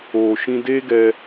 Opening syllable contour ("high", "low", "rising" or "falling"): low